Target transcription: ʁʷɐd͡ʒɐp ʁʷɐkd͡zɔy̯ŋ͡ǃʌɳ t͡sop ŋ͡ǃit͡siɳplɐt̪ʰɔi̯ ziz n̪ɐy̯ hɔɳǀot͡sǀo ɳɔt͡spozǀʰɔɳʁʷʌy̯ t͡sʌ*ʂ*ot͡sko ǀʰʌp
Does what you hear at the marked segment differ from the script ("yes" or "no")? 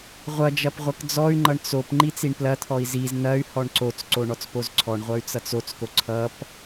yes